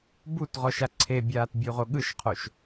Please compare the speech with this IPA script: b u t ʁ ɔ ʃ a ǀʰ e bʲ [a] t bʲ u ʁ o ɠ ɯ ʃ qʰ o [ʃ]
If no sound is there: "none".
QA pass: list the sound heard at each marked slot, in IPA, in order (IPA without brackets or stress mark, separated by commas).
aː, ʃ